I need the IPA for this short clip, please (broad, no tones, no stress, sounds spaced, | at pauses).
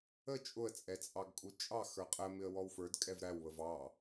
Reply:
ə t͡ʃʼ ʊ ə̯ t͡sʼ ɛ t͡sʼ ɑ ɡ kʼ u t͡ʃʼ ɑ x ə˞ qʼ ə m ɪ ə̯ w ɔ w f ə˞ d kʼ ɛ v ɾ æ w β ə v ɑ